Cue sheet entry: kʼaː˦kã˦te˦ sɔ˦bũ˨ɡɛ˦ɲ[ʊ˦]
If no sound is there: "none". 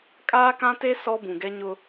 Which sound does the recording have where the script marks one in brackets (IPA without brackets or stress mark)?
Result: ʊ˦